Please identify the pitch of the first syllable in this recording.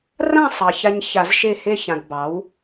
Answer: falling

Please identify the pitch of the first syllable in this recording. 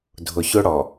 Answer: low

